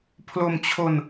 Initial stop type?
aspirated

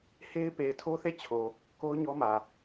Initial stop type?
plain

